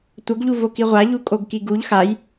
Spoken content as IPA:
tʷ ʌ ɡ ʎ u v o k i ʁʷ a ʎ u kʼ o ɡ k i ɡ u ʎ x a j

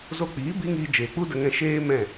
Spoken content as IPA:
z o˧ k͡p iː˨˦ b i˦ ŋ iː˧ d͡ʒ eː˨ k͡p u˦ d ə˧ ŋ ɛ̃˧ ʃ eː˦ m ɛ̃˦˨

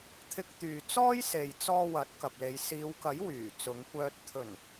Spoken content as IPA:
t̪ʰ ɪ˧ k̚ t̪ yː˨ t͡s ɔː˥ j s e˨ j t͡s ɔː˧ w ɐ˨˥ t̚ k ɐ˨ p̚ l e˨˧ j s iː˨˧ w k ɐ˨˥ j w yː˨˩ t͡s ʊ˨˧ ŋ kʷ œː˧ t̚ t̪ʰ ɵ˨˩ n

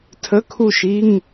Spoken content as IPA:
tʰ ə˧˥˧ kʰ u˥˨ ʃ i˧˥˧ ŋ

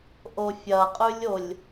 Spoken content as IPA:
ʔ o fʲ ɐ qʼ ʉ lʲ o lʲ

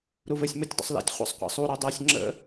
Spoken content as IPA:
ɾ u v ɘ sʲ m u tʲ dˤ ə̰ sˤ l ɛ̰ tʲ χʷ ə̰ sˤ qʷ ɛ̰ sˤ u ɾ o dˤ ɜ sʲ ŋ͡ǁ ə̰

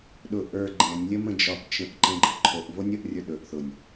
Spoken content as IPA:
ɗ ʊ ʔ ə˞ ɡ͡ǃ ɛ̃ nʲ lʲ ə m ə̃ d͡ʒ ɒ p t͡ʃ ə̃ ʔ ǃ ɛ̃ ɡ͡ǃ ə ʔ ǃʰ o ʔ v o nʲ ə ʔ rʲ ə˞ ɗ ɵ ʔ θ ʊ nʲ

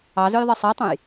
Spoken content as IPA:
ɑ z ø j ðˤ e sˤ e tˤ ũ j

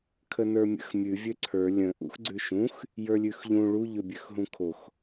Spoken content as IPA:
kʰ ə n ə˞ mʲ ə̰ x mʲ ʉ vʲ ø ǀʰ ə˞ lʲ ə̃ ʔ ṵ x ɡ͡ǀ ʉ ʃ ũ x | j ə˞ lʲ ʉ x ʎ ũ ɭ u ʎ ø bʲ ø x ɦ ũ kʰ o x

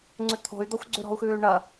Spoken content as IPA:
ŋ͡ǀ ʉ t̪ʰ o̤ y̯ d̪ ɔ xʷ ɡ͡ǀ ʉ ɾ ɔ̤ u̯ x ʉː y̯ ɳ ɐ

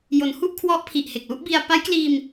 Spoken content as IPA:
j o˩˦ n h u˥˩ ʔ kʰ w ɔ˦˥ ʔ pʰ i˨˩ ʔ h e˨˩ k̚ l u˥˩ ʔ b i˧ a̯ p a˦˥ j k l iː˧ m

